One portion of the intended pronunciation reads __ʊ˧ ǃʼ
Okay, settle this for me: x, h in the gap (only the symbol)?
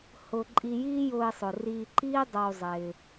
h